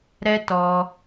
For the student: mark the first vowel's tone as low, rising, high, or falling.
high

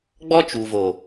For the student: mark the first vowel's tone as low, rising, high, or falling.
high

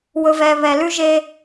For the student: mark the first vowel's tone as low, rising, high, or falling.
low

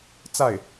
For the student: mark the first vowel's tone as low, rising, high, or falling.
falling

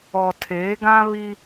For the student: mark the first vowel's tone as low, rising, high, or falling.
low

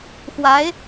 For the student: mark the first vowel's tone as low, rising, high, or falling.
rising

